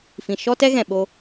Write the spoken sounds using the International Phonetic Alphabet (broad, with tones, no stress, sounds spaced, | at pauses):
f ĩ˨ ʃ ɔ˦ t ɛ˦ ɣ ɛ̃˨ ɓ o˦